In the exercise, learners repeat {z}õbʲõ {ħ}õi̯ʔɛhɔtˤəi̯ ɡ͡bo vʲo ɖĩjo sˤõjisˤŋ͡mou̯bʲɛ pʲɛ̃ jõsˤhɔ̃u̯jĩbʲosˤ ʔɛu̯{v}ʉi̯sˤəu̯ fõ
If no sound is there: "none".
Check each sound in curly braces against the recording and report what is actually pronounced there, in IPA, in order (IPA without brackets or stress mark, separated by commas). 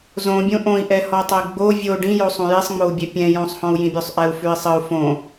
z, ʔ, f